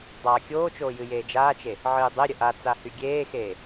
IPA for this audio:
dˤ aː kʲ oː t͡ʃ oː j ɨ j eː d͡ʒ aː t͡ʃ e | ʕ ɨː dˤ e ɾʲ ə ʔ a t͡s a h y ɡʲ eː x eː

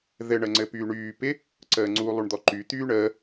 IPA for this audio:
ð ɘ ɳ ə ŋ͡ǀ ɘ p yː ɳ yː p ɪ | ǀ əː ŋ͡ǀ u lˠ u ɳ d̪ ɔ ǃ y t̪ yː ɳ əː

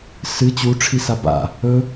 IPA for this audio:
s ɨ t͡ɕ u ʈ͡ʂʰ i s a b a̰ | ɵ

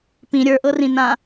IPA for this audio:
p ĩ ɾʲ ə˞ ʔ ɤ r ĩ n ã

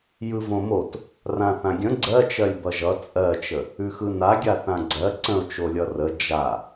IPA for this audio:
j ɯ v õ m o t | r ã θ ã ɡʲ ə̃ ɡ͡ǀ ɜ t͡ʃ ɜ lʲ b ʌ ʒ ʌ t͡sʼ ɜ t͡ʃ ə | ʉ x ɯ n a ɡʲ a θ ã ɡ͡ǀ ɜ ǀ ə̃ ʊ̯ t͡ʃ o lʲ ʌ r ə d͡ʒ a

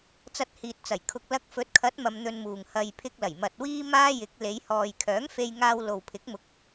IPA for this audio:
t͡s ɐ˧ t̚ h iː˨ t̚ t͡s ɐ˨˩ j kʰ ʊ˧ k̚ l ɐ˧ k̚ f ɵ˨˥ t̚ kʰ ɐ˨˥ t̚ m ɐ˧ m n̪ ɵ˧ n m uː˨ ŋ h ɐ˨ j pʰ ɪ˧ k̚ l ɐ˨˩ j m ɐ˧ t̚ w iː˥ m aː˥ j ɪ˨˥ k̚ l e˨˧ j h ɔː˨ j kʰ œː˨˥ ŋ f e˧ j ŋ aː˧ w l o˨ w pʰ ɪ˨˥ k̚ m ʊ˨˥ k̚

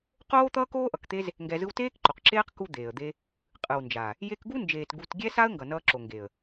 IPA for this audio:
q oː˦ t̪ ʌː˦ k oː˦ ʔ ʌ˨ k t̪ e˦ z | ŋ ɡ ɛ˧ z ɯ˦ w t eː˦ k ǃ o˨ q ǁ eː˦ q k u˦ d̪ eː˨ ə̯ d̪ e˦ | qʼ ɯ˨ w n d͡ʒ a˨ | j e˧ k ɡ u˦ n d͡ʒ eː˨ t ɡ u˧ t ɡʲ ɛ˦ s a˦ ə̯ ŋ ɡ ʌ˨ n ʌː˧ ǁ o˨ ŋ ɡ e˨ ə̯

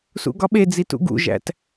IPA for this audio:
s ṵ ɡ ɒ ɓ e d͡z i t ṵ ɡ ṵ ʒ æ̰ t

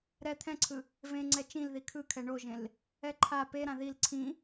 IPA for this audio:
ɾ ɛ t̪ʰ ɛ̃ ǀʰ ɯ | v ẽ ŋ͡ǀ ɛ t͡ʃ ĩ l ð i kʰ ɯ kʰ ɛ ɳ o ʒ ẽ l | ɛ ǃʰ a p e ɾ ã ð i l ǀʰ ĩ

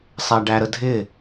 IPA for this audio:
sˤ æ ɖ æ ɾ ə dʱ ɪ

